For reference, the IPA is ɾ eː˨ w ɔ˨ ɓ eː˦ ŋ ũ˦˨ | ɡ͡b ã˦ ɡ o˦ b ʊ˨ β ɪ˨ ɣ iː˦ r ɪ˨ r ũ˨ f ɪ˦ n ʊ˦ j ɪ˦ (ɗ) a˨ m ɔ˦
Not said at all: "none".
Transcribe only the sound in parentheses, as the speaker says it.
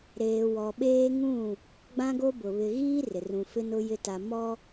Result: t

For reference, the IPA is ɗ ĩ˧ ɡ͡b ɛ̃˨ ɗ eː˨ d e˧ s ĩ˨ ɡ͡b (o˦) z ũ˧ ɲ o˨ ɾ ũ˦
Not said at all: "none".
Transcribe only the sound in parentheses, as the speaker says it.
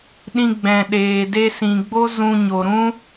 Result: o˦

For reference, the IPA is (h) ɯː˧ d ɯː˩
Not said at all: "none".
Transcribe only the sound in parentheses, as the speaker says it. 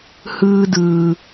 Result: h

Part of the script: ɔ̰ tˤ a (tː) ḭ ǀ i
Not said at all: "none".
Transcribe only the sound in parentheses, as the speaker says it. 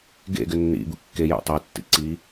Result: tː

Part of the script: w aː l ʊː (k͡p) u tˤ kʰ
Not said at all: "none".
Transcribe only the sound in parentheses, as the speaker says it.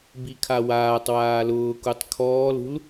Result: k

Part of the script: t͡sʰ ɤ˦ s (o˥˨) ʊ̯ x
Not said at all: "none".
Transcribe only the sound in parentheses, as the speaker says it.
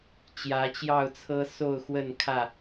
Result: o˥˨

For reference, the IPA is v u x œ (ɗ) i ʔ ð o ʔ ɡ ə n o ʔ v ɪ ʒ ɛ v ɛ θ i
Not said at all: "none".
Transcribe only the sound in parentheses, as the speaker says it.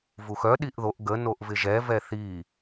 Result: ɗ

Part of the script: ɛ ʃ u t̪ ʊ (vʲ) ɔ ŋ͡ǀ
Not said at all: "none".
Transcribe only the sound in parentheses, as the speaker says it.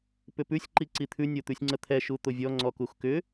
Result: vʲ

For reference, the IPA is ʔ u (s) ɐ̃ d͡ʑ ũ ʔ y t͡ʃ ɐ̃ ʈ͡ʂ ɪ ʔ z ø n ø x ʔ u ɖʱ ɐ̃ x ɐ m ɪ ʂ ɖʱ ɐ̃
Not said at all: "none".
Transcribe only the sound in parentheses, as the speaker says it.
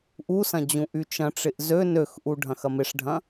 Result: s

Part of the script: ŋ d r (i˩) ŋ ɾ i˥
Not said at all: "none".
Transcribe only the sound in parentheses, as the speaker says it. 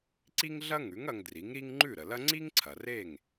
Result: i˩˥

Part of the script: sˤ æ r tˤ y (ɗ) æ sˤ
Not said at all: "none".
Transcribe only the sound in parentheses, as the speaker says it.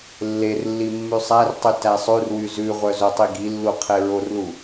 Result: t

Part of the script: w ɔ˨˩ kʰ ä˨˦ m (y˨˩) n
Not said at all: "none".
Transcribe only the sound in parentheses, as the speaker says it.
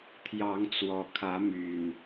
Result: y˨˩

